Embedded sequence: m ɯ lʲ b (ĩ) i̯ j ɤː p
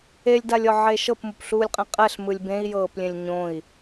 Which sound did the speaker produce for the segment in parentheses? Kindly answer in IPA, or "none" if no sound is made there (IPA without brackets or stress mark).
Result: ẽ